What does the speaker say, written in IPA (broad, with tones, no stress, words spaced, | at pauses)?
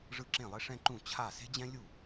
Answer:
ʐɯ˥˩ǁẽ˥˩lˠe˥ ʂɛ̃˥ǃũ˥˩ t͡ɕʰa˥˩ se̤˥d͡ʑɛ̃˥lʲu˥˩